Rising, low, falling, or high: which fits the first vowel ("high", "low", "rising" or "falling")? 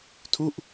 falling